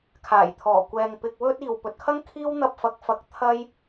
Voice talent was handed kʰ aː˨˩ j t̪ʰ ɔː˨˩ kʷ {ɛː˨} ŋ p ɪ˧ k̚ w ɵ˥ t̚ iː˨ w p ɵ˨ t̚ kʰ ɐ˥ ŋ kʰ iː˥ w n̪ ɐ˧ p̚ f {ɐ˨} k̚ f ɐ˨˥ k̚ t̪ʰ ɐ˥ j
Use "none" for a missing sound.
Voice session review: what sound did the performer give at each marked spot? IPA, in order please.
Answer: ɛː˨, ɐ˨˥

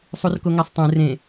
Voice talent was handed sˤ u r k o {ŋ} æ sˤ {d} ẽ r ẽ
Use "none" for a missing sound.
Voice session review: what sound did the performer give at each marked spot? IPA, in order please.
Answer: ŋ, tˤ

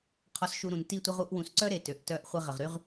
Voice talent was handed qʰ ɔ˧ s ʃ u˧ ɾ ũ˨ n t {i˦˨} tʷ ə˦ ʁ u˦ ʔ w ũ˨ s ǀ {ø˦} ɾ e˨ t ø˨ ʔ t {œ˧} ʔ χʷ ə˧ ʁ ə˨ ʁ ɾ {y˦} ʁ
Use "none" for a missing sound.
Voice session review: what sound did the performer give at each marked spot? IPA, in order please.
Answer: i˦˨, œ˦, œ˧, y˦

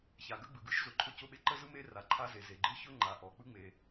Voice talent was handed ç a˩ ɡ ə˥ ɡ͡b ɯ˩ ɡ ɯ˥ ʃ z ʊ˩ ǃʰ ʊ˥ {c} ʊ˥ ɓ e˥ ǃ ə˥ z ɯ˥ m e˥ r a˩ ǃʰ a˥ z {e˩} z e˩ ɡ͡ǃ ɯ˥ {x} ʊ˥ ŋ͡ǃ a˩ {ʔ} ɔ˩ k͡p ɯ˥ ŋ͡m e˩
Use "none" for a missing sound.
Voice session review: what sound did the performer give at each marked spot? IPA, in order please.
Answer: c, e˩, ç, ʔ

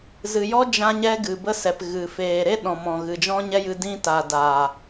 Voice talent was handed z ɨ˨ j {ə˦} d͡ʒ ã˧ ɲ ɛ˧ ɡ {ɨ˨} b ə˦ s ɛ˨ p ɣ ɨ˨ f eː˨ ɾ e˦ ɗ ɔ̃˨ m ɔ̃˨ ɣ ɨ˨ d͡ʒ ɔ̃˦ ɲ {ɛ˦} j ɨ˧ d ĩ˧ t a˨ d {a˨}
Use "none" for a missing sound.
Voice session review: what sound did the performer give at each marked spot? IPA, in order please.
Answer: ɔ˦, ɨ˨, ɛ˦, a˨

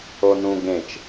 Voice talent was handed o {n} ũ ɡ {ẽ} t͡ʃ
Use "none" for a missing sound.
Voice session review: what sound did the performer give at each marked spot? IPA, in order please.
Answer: n, ẽ

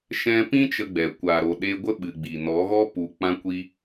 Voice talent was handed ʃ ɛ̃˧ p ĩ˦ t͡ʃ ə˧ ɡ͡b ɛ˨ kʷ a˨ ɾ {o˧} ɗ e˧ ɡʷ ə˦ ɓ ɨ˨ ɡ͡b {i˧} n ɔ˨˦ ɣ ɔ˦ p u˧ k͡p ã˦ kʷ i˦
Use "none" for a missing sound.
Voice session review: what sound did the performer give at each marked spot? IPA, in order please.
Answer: o˨, i˨

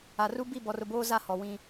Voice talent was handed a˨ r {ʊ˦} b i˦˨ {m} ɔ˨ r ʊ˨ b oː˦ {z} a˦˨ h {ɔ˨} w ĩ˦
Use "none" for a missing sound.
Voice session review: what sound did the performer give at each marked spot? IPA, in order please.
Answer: u˦, b, z, ɔ˨

